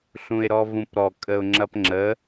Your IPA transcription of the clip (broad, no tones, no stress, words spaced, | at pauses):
ɬũɪ̯ɾɔvũpɾɔ kʼəʊ̯ŋ͡ǁɐpŋ͡ǁə